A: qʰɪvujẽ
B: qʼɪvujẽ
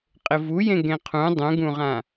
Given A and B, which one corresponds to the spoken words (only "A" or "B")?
B